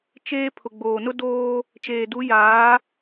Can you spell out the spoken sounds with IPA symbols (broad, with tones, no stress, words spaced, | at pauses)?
t͡ʃeː˦ pʰʊ˨ɡ͡boː˨nʊ˦doː˦ | t͡ʃeː˨du˨˦jaː˨˦